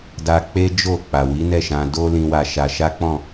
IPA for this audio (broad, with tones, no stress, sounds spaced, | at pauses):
d a˧ k͡p e˦ d͡ʒ o˦˨ k͡p a˨ w i˨˦ n ɛ˦˨ ʃ ã˧ d o˦ l ĩ˧ w a˧ ʃ a˧ ʃ a˦ k͡p ɔ̃˦˨